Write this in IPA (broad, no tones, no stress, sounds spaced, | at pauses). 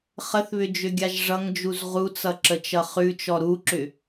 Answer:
χ ə θ β ʏ d͡ʒ ʏ ɡʲ a ʒ ʐ ʌ ŋ d͡ʒ u z ʁ u t͡s ʌ ǁ ə t͡ʃ ʌ χ ʉ t͡ʃ ɔ ɾ u ǁ ʏ